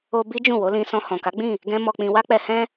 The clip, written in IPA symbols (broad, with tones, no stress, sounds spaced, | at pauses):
o˧ b i˦ d͡ʒ ũ˦˨ w o˨˦ l ĩ˧ s ɔ̃˧ h ɔ̃˨ k a˨˦ ɡ͡b ĩ˦˨ | ɡ ɛ̃˦ m ɔ˧ k͡p ĩ˧ w a˦ k͡p ɛ˧ h ɛ̃˦